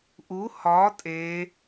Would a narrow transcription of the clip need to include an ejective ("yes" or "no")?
yes